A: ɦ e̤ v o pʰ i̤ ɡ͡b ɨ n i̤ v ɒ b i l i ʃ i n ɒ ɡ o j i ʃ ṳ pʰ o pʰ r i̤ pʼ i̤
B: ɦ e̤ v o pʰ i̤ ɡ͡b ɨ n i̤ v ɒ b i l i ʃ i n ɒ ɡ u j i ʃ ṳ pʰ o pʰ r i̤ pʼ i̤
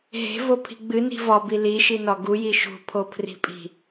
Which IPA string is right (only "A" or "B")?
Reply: B